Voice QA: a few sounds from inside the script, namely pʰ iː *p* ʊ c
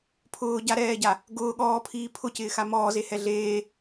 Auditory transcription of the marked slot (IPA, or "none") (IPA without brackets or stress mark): pʰ